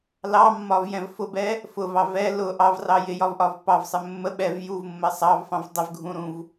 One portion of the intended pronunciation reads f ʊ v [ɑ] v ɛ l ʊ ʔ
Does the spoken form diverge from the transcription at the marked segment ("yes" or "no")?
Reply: no